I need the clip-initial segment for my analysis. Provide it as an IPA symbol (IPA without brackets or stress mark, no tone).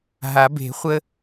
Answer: ɦ